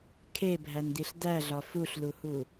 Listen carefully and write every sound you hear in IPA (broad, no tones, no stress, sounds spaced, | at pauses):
kʰ e bʱ æ n d̪ i ɬ d̪ æ ɮ ɒ f u ɬ l u h u